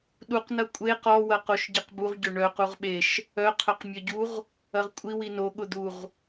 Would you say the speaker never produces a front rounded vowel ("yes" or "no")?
no